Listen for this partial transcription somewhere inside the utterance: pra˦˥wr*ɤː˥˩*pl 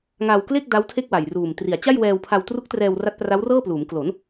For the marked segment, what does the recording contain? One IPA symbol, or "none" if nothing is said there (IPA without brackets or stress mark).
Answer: ɤː˥˩